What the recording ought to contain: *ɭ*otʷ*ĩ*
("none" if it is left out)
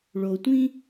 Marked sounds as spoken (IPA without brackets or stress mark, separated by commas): ɭ, ĩ